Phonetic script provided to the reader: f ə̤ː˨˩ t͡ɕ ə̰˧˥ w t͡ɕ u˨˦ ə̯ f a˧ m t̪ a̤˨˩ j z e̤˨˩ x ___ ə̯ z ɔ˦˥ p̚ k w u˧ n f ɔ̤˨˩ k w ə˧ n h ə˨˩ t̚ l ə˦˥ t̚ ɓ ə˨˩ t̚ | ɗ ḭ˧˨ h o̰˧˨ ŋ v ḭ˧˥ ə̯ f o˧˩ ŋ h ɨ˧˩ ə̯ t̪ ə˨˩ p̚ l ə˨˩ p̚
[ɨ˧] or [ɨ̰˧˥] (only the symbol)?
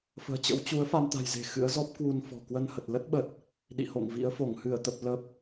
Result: ɨ̰˧˥